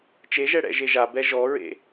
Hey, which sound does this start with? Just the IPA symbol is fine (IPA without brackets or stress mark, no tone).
t͡ʃ